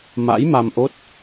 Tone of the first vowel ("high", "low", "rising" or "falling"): rising